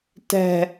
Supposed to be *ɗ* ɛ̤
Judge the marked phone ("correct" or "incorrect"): incorrect